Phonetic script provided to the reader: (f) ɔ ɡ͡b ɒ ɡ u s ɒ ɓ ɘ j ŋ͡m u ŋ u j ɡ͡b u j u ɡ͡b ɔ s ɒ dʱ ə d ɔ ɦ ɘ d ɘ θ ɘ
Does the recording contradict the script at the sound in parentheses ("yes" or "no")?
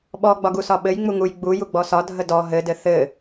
yes